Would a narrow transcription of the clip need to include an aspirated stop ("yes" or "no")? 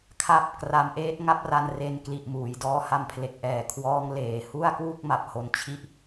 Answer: yes